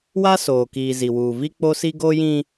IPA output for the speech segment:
w a˦ s oː˨ k iː˨ z i˨ w uː˨ v i˦ k͡p o˦ s i˦ ɡ oː˦ j ĩ˦

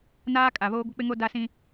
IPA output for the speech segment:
n aː˦ kʼ a˨ β oː˦ ɡʷ ɪ˦ k͡p ɪ˦ ŋ o˦ d a˦ s ĩ˦

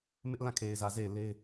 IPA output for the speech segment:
m ɪ˦ ʔ l ã˦˨ kʰ e˨ ɪ̯ z ä˨ z e˦˨ ɪ̯ l e˦ ɪ̯

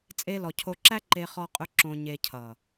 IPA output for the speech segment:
t͡sʼ e˧ l ɔ˨ cʰ o˧ ǁ æ˧ ǃ e˦ χ ɔ˦ qʼ ɵ˦ ǁ õ˧ ɲ e˧ cʰ ʌ˨

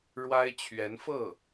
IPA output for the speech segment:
ɻ w a˥ ɪ̯ t͡ɕʰ ɥ ɛ˧˥ n f ɤ˥˩

